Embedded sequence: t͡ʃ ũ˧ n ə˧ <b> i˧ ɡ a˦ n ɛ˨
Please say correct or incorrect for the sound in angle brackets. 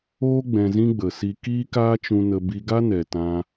correct